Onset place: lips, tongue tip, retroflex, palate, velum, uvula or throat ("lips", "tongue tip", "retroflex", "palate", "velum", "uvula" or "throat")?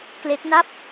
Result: velum